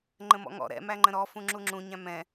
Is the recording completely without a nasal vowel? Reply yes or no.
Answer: no